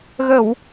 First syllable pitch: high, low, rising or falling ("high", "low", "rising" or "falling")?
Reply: low